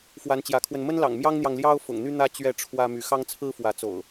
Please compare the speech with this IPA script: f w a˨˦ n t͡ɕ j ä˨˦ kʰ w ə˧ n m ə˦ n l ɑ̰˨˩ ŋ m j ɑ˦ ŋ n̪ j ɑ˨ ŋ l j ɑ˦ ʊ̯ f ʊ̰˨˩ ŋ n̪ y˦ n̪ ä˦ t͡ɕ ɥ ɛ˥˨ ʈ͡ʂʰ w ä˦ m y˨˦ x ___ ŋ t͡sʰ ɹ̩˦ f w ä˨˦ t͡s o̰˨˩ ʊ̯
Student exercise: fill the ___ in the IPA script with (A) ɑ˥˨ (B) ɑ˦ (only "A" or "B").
B